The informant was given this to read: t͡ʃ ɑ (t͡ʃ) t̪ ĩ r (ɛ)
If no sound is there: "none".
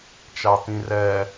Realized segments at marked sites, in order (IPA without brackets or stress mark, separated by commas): none, ɛ